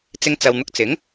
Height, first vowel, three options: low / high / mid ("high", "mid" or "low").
high